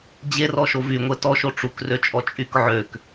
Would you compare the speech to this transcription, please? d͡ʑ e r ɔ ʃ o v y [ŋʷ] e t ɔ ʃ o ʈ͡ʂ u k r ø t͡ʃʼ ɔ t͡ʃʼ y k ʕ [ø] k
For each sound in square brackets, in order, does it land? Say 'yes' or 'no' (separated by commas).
yes, yes